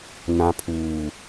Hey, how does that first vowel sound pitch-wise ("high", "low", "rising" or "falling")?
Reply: low